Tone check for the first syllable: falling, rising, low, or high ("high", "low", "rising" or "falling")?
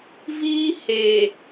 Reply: high